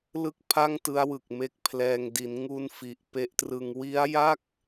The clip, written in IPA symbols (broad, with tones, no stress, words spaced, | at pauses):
lɯ˥˩k̚pʰa˥˩ŋtɯ˦˥a̯wɯ˨˩k̚ me˦˥k̚pʰlɛː˧ŋ di˩˦nŋu˧n fi˨˩ʔ pe˦˥ʔtrɯ˧ŋ wi˦˥a̯ja˥˩k̚